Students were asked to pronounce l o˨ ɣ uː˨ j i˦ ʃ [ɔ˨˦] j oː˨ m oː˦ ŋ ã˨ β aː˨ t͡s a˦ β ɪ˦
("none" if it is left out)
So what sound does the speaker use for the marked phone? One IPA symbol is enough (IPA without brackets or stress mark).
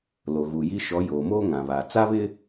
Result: ɔ˨˦